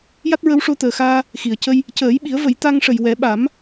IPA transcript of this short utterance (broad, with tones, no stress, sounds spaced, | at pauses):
j a˦˥ t̚ ɹ ə˧˥ w ʂ o˧ t̪ əː˨˩ x aː˧ | x i˨˩˨ ə̯ c ə˧ j | c əː˨˩˦ j ɓ i˨˩˦ ə̯ v ə˨˩˦ j t̪ a˧ ŋ ʂ ə˨˩ j w ɛ˨˩˦ ɓ a˨˩˦ m